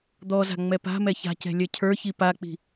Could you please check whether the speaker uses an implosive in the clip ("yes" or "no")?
no